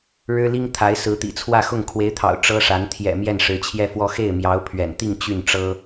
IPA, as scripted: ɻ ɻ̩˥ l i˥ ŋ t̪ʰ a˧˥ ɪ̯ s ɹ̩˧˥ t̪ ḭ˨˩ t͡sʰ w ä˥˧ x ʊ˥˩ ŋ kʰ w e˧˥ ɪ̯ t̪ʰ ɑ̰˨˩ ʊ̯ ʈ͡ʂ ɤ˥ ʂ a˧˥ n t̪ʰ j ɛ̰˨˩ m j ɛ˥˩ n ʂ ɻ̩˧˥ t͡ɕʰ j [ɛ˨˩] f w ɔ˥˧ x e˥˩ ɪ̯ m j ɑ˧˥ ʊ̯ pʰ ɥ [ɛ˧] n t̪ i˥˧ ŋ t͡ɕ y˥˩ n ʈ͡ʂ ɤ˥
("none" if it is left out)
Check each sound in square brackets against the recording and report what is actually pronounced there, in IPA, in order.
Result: ɛ˥˧, ɛ̰˨˩

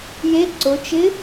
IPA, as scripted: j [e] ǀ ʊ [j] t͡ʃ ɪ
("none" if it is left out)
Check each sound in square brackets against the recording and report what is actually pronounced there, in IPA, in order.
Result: e, none

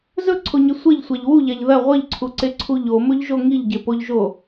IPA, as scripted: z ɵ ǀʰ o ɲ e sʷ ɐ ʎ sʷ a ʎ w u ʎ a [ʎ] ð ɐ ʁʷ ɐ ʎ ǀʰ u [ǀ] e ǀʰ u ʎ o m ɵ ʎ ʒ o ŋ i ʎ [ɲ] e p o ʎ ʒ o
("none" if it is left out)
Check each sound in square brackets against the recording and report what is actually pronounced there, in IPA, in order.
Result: ʎ, ǀ, ɟ

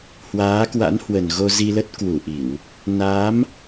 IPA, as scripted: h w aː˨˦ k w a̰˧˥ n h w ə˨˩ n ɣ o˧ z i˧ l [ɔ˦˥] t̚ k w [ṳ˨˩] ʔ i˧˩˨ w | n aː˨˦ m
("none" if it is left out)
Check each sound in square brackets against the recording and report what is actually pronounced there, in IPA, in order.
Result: ə˦˥, u˧˩

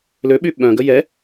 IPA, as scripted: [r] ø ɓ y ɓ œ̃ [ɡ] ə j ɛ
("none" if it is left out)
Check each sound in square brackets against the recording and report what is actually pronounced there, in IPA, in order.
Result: l, ɡ

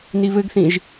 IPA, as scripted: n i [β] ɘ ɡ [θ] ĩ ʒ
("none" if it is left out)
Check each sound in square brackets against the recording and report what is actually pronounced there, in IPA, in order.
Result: β, θ

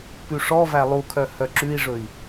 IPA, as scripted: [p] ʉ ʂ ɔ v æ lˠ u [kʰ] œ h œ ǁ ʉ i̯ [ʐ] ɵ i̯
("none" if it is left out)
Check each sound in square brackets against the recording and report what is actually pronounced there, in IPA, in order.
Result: p, kʰ, ʐ

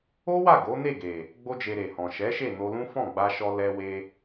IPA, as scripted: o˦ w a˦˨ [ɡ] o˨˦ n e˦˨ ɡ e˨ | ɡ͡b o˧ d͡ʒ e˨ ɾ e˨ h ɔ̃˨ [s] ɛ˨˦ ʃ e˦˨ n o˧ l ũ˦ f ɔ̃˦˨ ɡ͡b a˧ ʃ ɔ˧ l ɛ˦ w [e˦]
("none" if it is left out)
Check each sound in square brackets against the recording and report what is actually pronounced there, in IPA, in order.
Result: ɡ, ʃ, e˦

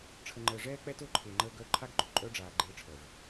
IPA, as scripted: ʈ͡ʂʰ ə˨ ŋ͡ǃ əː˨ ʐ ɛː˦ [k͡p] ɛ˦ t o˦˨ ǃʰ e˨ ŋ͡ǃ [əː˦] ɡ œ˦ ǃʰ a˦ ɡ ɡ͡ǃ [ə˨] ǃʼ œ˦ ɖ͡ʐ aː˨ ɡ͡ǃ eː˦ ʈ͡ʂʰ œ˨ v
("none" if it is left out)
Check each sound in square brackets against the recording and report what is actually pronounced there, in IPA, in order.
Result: k͡p, əː˦, œ˨

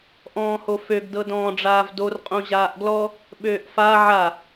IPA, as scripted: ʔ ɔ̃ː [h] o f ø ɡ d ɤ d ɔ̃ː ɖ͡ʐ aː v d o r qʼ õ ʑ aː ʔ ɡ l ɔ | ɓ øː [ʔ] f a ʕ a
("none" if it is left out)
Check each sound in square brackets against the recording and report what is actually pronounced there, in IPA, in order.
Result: h, ʔ

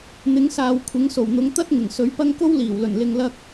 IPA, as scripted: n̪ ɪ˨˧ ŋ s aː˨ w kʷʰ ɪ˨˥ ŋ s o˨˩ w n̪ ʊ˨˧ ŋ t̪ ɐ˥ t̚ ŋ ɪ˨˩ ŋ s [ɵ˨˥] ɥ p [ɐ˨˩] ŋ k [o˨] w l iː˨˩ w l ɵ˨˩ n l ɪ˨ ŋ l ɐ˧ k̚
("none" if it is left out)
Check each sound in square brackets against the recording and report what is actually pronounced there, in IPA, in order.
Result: ɵ˨˥, ɐ˥, o˥

